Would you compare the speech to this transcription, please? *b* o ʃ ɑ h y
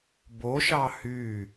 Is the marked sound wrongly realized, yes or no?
no